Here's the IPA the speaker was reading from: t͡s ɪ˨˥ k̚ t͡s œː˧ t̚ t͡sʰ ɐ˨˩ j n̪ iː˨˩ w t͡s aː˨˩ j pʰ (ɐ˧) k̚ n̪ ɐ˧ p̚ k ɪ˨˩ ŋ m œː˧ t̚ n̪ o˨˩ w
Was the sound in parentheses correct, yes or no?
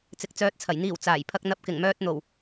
yes